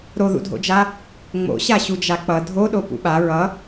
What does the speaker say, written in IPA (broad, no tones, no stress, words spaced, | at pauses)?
ɾoðṵdʱo̰d͡ʒa | ŋ͡mo̰ ɕaɕud͡ʒak͡pʌ dʱoɗo pṵɓa ɹʌ